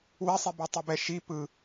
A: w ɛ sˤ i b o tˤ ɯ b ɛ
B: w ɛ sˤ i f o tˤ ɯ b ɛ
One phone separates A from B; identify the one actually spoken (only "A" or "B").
A